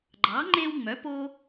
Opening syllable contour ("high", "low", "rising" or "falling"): rising